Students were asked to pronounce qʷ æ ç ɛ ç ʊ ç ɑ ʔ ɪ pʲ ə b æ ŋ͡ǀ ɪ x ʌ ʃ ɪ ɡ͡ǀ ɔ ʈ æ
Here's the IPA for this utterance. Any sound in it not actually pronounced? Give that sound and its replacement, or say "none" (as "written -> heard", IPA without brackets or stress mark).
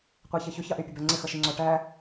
ɡ͡ǀ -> ŋ͡ǀ